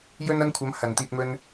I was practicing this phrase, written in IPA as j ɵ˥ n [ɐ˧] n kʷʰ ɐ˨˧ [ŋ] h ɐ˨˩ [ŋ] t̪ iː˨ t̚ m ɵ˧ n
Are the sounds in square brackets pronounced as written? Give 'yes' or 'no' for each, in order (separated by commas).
no, no, no